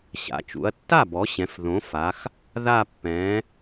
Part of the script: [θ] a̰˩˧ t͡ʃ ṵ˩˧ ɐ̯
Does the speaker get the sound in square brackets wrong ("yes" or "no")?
yes